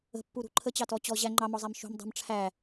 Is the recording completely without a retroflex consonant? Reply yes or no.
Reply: no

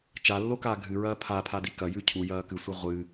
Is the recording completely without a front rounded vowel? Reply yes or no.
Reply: yes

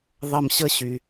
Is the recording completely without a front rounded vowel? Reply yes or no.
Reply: no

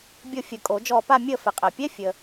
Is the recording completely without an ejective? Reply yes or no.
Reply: no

